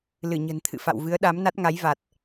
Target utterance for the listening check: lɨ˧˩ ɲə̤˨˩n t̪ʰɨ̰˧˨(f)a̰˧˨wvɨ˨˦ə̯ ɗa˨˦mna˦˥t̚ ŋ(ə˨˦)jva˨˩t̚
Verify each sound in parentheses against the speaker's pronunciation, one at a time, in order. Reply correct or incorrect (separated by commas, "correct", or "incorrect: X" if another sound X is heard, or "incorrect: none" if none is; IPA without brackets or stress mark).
correct, incorrect: a˨˦